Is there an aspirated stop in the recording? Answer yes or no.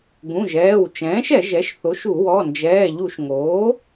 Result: no